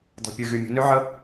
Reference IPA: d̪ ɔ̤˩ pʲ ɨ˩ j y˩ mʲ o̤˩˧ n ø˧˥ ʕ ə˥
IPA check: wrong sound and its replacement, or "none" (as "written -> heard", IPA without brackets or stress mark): j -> ɣ